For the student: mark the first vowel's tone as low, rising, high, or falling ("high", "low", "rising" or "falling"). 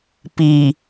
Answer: low